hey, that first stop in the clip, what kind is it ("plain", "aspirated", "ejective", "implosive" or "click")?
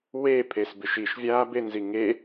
aspirated